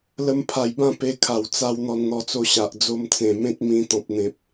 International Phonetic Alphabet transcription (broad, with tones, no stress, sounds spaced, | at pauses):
l ə˧ m pʰ a˨˩ j b ã˥˧ p e˧ kʰ a˨˩ w t͡s a˧ w n̪ ɔ˧ n n̪ ɔ˧ t͡s o˧ ɕ a˨ ʔ d͡z o˧ m t͡s ẽ˨˩ m ẽ˦ t̚ m ĩ˧ t̪ ɔ̃˨ p̚ n̪ ẽ˨ p̚